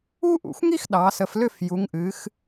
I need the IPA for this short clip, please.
u˥ ʔ ṵ˩˧ xʷ ŋ i˥ x ɗ ɑ˩˧ s ə˩˧ f l ʏ˥˧ f j u˩˧ ŋ ʔ ɨ˩˧ x

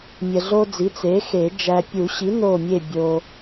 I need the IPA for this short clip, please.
mʲ ə˨ ɮ o˦ d͡z i˩˥ t͡s e˩˥ x e˨˩˦ d͡ʒ æ˨ pʲ u˨˩˦ ɕ i˩˥ n o˦˨ mʲ e˦˨ bʲ o˨

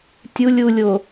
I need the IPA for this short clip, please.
tʲ u lʲ u lʲ o

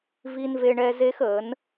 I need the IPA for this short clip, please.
v i˦ n v e˦ ɳ ɛ˦ z e˦ x əː˨˦ n

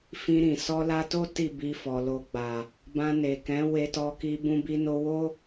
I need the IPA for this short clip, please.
f ĩ˧ ɾ ĩ˨ s ɔ˧ l a˧ t o˦ t i˦˨ b i˧ f ɔ˨ l o˧ ɡ͡b a˨ | b ã˧ n e˨ k ɛ̃˨˦ w e˧ t ɔ˧ k i˧ b ũ˧ b i˧ n o˧ w o˦

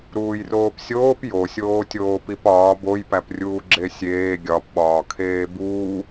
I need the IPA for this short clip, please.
ɾ uː j r oː p sʲ oː p j o sʲ oː tʲ oː p i p ɒː b o j p æ p rʲ uː ɡ͡ǁ e sʲ eː ɡʲ ɒ p ɓ ɒː kʰ eː b uː

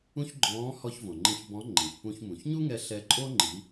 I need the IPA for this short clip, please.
ũ˥ ç ɡ͡ǃ ɔ̃ː˧˥ h ɔ˧ ç v õ˩ ŋ͡ǃ ĩ˧ ç b ɔ̃˧˥ ŋ͡ǃ ĩ˩ ç p ũ˧ ç m ũ˩ ç ɲ u˥ ŋ ɛ˧ ɬ ɛ˧ ǃʼ o˥ ŋ͡ǃ i˩˧

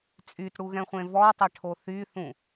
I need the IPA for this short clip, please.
t͡sʼ y t ɽ u ɣ ɛ̃ χʷ ẽ v ɔ tˤ ɛ ʈʰ o θ y θ ũ

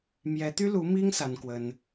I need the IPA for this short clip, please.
m j ɛ˧˥ t̪ y˥ l u˧˥ m i˥ ŋ s a˥ n k w ə˥ n

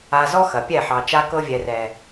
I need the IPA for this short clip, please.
a˧ z ɔ˦ x ɐ˨ pʲ ɛ˦˨ ħ ɑ˨ t͡ʃ a˧ k ɤ˧ vʲ ɛ˨ r ɛ˨

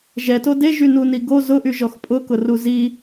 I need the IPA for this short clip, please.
ʒ ɛ t o d e ʒ y n u n i ɡ o z ʊ ʔ y ʒ ɔ x pʼ ʊ k ʊ r u z i

